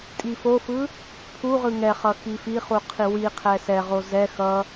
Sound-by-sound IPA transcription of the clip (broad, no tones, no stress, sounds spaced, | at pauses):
tʼ i f o f ɯ | pʰ u ʁ ɯ ŋ ɛ χ ʌ x i f i χ u qʰ i w i qʰ ɛ s ɛ ʁ o z ɛ x ʌ